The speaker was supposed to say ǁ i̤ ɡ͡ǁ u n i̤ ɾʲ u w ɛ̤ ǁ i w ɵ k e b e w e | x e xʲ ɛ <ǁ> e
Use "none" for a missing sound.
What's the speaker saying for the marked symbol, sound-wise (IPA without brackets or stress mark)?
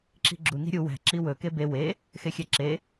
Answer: ǁ